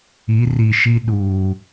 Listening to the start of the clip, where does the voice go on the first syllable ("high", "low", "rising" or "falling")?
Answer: rising